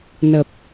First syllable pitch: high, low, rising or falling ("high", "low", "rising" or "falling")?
low